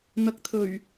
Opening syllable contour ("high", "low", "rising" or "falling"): low